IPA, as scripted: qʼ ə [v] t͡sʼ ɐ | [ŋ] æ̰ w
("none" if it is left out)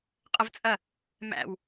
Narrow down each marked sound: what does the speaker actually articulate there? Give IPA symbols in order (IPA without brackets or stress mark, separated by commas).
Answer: v, m